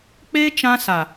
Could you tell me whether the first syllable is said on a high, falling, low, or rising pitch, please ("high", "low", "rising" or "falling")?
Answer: high